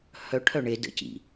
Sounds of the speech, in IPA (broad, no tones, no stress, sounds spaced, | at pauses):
h œ ʈʰ œ ɳ e d ə̰ c ḭ